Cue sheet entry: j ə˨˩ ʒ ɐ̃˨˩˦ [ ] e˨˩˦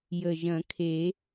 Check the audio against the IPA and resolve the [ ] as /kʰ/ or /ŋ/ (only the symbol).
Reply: kʰ